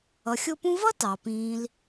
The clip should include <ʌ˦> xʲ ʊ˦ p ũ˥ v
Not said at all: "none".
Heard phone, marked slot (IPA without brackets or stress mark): ʌ˨